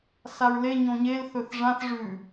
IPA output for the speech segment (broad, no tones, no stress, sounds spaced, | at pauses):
s a ɹ l e ɲ õ ɲ e l θ ɵ θ ʐ ã θ ʐ ʉ